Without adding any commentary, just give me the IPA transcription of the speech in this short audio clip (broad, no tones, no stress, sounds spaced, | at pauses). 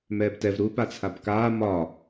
m ɛː b t ɛ v ɾ u p a t͡sʰ a b k aː m ɒ